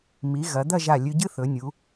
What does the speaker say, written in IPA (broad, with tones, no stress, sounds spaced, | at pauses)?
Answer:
m i˩˧ ɣ ɐ˩˧ d̪ ɐ˥˧ ʒ a˧˩ lʲ ʉ˧ ɟ ɨ˥ θ ɵ˩˧ nʲ u˩˧